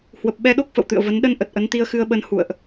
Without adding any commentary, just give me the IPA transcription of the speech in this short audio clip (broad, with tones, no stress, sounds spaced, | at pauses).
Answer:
h w ə˨˩ p̚ ɓ ɛ˧ ɗ o˦˥ k̚ f ə̰˧˨ w t̪ ɨ̰˧˨ ə̯ v ə˨˦ n ɗ ə˧ n ʔ ə˨˩ t̚ ʔ ə˨˦ n t̪ i˧ ə̯ x ɨ˧ ə̯ ɓ ə˧ n h ṵ˧˨ ə̯ ʔ